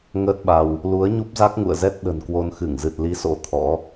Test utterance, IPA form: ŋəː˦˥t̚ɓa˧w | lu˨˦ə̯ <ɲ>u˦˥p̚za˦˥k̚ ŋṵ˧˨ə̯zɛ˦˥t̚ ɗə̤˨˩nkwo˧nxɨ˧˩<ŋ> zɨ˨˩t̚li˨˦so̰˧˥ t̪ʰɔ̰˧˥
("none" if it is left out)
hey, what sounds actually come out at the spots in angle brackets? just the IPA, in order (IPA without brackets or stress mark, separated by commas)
ɲ, ŋ